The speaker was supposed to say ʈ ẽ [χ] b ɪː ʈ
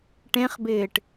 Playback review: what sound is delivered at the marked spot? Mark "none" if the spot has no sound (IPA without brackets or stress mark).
χ